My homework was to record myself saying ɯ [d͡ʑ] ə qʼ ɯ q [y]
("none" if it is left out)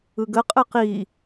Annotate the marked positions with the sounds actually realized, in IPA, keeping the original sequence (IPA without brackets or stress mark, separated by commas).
ɡ, i